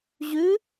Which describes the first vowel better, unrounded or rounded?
rounded